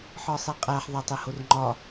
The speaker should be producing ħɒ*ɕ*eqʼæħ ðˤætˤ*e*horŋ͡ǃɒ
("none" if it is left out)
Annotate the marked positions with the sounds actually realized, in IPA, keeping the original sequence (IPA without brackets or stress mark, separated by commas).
sˤ, e